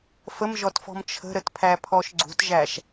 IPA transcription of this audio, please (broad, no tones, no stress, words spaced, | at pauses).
fəmʒɔtfɔ̤m t͡ʃʰə̤ɾətpʰæpʰɔʃ ɡ͡ǀṳtʒæʃ